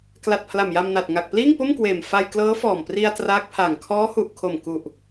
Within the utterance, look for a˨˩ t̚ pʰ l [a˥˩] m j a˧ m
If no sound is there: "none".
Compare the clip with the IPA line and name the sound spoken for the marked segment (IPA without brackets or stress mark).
a˨˩